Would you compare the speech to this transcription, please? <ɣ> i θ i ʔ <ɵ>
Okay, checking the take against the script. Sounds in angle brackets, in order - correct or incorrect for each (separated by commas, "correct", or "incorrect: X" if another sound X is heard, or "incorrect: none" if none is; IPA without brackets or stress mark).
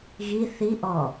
correct, incorrect: ɔ